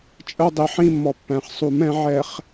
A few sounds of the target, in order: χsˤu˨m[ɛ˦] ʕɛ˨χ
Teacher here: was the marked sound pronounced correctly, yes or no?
no